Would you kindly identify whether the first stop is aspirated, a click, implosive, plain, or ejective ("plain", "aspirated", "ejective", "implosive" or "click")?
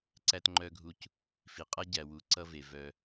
click